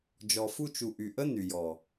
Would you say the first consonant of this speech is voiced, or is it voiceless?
voiced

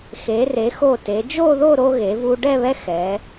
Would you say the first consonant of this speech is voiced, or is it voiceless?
voiceless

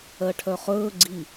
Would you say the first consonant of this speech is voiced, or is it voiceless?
voiceless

